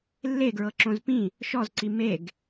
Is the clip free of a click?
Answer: no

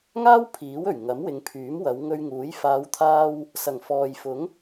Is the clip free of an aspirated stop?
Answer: no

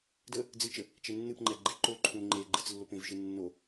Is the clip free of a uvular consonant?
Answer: yes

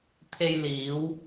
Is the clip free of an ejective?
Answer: yes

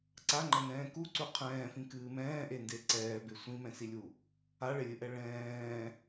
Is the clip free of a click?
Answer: no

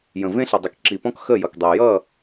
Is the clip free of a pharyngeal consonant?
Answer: yes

